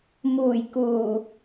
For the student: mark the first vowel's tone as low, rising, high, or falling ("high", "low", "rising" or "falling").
low